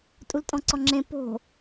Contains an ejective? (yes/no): yes